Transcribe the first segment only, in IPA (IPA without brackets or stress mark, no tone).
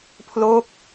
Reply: pʰ